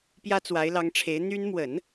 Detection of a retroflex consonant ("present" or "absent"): present